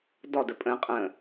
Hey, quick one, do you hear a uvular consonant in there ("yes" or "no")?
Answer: yes